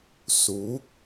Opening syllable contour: rising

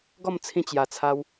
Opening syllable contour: falling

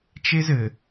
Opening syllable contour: high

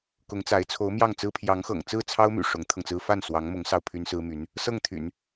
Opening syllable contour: rising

